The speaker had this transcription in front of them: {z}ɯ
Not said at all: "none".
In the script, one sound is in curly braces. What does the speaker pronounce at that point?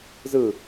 z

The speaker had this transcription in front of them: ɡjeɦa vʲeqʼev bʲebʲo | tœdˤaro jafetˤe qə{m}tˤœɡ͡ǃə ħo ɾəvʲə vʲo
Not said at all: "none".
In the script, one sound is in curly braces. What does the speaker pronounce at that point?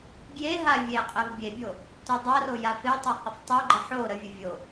f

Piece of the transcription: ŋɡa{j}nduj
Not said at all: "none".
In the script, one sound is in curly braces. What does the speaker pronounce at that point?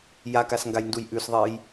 j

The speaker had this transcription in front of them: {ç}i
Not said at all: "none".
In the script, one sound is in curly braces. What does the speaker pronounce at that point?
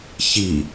ç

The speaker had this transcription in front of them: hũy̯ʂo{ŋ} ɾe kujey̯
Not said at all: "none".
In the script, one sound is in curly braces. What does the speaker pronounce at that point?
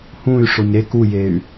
ɲ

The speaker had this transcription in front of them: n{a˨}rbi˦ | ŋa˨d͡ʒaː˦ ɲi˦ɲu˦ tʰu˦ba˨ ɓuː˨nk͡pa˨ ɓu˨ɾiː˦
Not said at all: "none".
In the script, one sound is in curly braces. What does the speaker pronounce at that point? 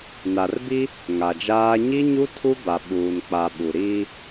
a˨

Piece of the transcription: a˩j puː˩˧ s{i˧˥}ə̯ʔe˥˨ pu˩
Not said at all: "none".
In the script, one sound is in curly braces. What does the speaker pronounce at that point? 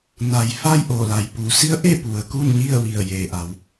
i˧˥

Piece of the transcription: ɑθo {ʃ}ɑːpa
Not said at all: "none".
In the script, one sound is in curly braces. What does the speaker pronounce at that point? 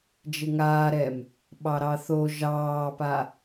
ʒ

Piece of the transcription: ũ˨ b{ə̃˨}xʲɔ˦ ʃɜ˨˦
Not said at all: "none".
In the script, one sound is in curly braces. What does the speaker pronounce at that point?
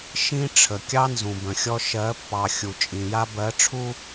ə̃˨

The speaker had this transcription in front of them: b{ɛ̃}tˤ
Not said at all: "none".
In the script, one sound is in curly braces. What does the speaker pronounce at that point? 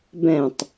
ɛ̃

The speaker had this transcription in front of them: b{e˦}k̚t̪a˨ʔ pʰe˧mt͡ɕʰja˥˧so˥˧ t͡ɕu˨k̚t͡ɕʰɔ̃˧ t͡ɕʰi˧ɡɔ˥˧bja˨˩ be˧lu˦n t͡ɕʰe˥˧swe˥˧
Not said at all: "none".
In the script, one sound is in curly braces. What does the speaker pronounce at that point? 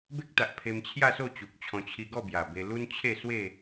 e˦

